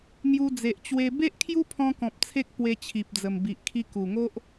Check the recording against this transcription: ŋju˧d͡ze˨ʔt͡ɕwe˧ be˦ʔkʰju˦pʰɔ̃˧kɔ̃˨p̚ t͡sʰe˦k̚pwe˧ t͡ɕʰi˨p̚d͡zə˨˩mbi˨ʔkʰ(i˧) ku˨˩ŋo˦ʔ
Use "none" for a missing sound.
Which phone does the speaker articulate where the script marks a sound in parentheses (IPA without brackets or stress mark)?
i˧